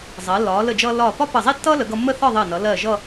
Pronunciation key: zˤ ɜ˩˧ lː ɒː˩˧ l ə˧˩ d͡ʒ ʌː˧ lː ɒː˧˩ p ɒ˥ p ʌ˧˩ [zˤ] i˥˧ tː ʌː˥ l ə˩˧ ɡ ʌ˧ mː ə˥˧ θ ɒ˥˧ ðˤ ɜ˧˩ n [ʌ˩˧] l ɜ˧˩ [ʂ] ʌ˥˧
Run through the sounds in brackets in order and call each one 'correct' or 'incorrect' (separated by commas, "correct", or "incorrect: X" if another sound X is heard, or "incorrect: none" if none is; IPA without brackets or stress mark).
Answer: correct, correct, incorrect: ʒ